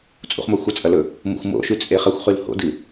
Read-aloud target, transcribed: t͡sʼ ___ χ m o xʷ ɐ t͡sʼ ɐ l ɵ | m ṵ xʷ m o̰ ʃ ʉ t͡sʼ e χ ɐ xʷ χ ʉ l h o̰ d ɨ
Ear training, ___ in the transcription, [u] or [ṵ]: ṵ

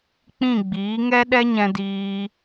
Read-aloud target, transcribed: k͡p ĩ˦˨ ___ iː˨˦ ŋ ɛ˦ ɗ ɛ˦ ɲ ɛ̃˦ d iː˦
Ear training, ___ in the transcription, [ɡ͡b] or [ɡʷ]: ɡ͡b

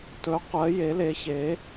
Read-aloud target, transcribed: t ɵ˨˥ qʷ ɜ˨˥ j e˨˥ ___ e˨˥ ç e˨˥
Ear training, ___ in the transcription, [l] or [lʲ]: l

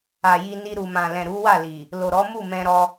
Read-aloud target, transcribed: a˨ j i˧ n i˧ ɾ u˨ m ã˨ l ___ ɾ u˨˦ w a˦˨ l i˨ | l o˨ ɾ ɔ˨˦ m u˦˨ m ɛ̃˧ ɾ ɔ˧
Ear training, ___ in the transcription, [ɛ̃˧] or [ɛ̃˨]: ɛ̃˨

